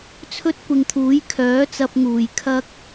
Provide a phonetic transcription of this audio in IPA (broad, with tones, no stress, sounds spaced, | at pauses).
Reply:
t͡sʰ ɵ˥ t̚ kʷ ɪ˨ ŋ t̪ʰ uː˨˥ j kʰ œː˨˥ t͡s ɐ˧ p̚ ŋ uː˨˩ j kʰ ɐ˧ k̚